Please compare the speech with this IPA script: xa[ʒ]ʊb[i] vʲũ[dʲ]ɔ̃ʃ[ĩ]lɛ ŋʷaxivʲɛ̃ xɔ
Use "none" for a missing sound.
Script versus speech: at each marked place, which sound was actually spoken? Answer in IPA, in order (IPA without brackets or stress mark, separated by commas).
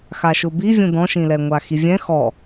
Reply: ʃ, i, d, ĩ